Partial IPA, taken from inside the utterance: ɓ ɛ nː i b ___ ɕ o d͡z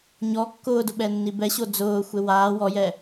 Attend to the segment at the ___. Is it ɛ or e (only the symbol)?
ɛ